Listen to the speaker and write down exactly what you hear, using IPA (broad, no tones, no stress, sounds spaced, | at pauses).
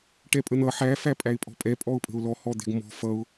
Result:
ʈ ɛ pʼ ə n̪ ʌ ħ æ f æ pʼ æ ɪ̯ pʼ ɔ̤ pʼ ɛ pʼ ɔ ʊ̯ pʼ ə̤ ʊ̯ l ɔ h ɔ d̪ ɛ̤ ɡ m ɔ̤ f ʌ ʊ̯